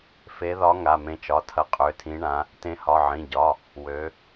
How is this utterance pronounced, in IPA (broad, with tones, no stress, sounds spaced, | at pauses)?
f e˨˦ ð ɒ˨˦ ŋ a˩˧˩ m ẽ˨˦ t͡ʃ ɒ˩˧˩ tʰ ɐ˨˦ qʼ ø˩˧˩ tʰ ĩ˨˦ ɳ ã˨˦ | t ẽ˨˦ h ɒ˩˧˩ ʕ ĩ˩˧˩ ɟ ɒ˩˧˩ | w ø˨˦